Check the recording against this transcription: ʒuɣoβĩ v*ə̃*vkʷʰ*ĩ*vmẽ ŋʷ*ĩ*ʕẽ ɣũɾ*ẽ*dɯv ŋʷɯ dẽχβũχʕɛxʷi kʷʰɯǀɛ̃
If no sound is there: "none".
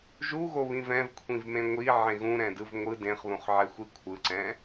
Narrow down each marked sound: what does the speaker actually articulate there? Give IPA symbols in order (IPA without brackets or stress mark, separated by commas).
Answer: ɛ̃, ĩ, i, ɛ̃